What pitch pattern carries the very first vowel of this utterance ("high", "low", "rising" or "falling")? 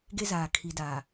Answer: high